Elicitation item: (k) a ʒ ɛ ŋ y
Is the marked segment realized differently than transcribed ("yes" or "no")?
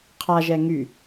yes